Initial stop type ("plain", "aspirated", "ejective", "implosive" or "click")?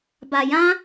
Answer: plain